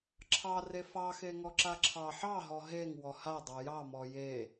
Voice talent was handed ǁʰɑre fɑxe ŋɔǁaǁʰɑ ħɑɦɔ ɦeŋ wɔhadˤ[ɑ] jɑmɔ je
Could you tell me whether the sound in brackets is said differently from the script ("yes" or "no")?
no